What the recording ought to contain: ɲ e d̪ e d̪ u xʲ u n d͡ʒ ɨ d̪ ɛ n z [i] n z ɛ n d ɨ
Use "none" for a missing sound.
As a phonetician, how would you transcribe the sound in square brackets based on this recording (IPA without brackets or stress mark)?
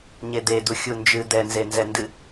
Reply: e